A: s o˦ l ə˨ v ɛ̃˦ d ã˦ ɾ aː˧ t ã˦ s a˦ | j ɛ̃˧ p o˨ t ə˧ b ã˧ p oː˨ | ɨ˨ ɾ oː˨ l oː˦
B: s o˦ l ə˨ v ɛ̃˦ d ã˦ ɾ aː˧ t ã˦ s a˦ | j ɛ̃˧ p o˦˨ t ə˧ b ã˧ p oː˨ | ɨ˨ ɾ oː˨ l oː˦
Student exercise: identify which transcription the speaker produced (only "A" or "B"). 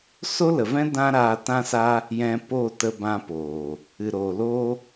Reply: B